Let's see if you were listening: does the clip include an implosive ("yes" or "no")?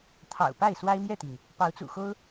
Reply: no